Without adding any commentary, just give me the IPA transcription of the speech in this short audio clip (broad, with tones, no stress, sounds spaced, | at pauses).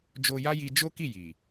d͡ʒ o˧ j a˦ j i˧ d͡ʒ o˦ k i˦˨ j i˨